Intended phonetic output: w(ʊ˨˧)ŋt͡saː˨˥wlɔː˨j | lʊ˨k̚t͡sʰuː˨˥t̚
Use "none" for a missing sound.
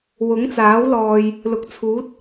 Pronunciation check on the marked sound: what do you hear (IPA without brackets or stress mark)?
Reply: ʊ˨˥